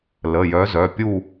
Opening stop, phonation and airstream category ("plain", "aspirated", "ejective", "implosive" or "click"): plain